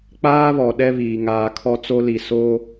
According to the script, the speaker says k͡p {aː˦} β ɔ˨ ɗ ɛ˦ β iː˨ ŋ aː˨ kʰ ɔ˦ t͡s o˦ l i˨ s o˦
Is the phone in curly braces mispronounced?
no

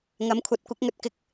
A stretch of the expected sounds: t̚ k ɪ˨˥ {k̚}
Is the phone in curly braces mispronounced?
no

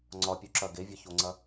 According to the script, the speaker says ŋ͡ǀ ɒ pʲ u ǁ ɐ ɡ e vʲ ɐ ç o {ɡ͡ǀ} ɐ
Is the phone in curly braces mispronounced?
yes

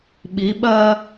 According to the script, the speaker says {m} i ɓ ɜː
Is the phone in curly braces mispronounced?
yes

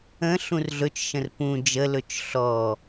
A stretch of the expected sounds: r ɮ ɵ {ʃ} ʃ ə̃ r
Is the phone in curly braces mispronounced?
yes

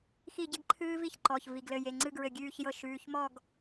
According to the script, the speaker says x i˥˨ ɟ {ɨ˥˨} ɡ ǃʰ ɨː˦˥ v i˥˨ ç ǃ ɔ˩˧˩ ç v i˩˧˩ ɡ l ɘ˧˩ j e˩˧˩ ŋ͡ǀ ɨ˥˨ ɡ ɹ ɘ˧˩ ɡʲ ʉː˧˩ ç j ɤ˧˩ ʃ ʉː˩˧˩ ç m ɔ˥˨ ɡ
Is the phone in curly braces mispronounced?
yes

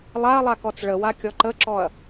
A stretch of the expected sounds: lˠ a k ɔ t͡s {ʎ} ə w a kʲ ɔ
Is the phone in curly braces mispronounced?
yes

